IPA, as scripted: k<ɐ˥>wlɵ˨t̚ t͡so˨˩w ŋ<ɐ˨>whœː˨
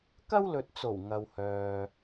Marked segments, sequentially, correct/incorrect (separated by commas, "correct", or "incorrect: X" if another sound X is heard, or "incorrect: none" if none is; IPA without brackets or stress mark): correct, correct